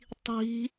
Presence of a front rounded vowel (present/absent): absent